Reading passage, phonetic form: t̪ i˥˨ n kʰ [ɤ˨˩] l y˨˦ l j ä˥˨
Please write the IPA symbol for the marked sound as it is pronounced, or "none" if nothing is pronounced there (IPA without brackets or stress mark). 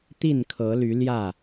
ɤ˨˦